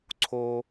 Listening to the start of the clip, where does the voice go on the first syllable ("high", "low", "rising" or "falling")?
high